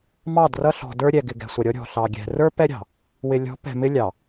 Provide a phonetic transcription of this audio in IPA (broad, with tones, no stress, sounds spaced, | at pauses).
m ɑ˦˨ d r ʌ˦ ɬ ɔ̤˨ d ə˞˦ ɾʲ ɛ˨ ɡ ɪ˨ ɡ ɛ̤˨ sʷ ʌ˨ ɾʲ ɔ˦ ɾʲ ɔ̤˨ ɬ ɑ˨ ɡʲ ɛ̤˨ r ə˞˦ p ɛ˦ ɾʲ ɑ̤˨ | w ɪ˨ lʲ ɔ̤˨˦ p ɛ̤˨ m ɪ˦ lʲ ɑ˨